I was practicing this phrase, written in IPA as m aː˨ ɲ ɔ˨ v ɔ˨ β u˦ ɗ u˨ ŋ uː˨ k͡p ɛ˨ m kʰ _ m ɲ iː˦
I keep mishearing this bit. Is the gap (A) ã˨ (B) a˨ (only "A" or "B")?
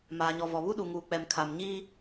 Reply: B